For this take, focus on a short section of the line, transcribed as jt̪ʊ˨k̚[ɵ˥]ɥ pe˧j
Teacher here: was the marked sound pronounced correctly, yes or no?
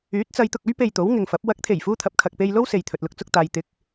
yes